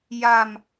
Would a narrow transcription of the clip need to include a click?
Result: no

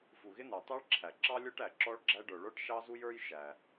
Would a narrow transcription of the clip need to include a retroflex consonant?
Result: yes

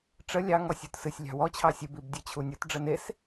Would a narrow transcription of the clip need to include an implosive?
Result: no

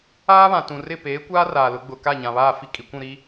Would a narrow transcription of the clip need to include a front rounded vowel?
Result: no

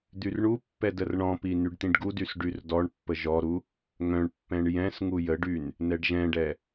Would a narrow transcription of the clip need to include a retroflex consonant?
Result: yes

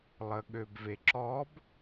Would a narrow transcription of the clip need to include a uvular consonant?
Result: no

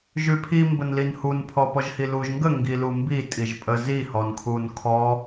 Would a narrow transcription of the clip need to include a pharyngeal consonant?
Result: no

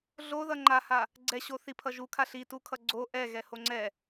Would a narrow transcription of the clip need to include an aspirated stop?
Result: yes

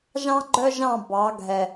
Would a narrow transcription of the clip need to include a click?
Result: yes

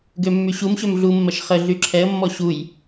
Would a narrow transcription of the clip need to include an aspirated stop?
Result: yes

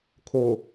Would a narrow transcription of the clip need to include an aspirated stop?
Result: yes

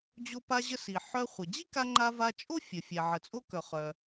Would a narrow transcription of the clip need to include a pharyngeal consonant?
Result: yes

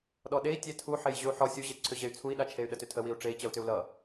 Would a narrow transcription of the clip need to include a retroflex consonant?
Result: yes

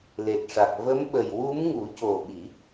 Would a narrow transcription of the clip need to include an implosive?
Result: yes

